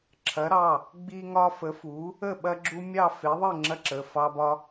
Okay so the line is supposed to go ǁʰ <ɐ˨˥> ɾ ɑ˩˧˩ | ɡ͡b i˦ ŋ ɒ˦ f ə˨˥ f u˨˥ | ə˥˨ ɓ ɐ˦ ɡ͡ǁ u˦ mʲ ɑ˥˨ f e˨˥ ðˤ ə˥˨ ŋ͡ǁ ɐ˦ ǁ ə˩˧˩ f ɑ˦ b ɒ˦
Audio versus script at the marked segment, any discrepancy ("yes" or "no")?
no